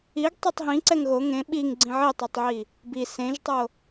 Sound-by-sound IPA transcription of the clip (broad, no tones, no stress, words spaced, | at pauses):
iɡ tˤetˤɦĩ ǀɛŋɣo ŋẽ ɓiŋɡ͡ǀĩ ʕitˤotˤʕi | bi sẽʒtˤo